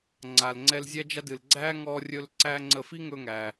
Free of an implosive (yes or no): yes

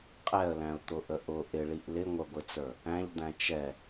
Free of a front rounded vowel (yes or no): yes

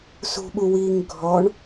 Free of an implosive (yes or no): no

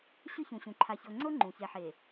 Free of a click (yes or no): no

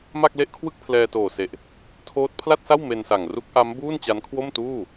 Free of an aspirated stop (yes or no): no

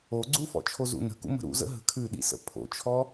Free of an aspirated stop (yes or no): no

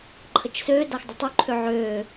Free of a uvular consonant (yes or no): yes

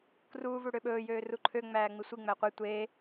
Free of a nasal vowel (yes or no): yes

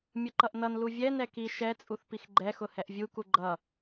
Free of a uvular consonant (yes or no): yes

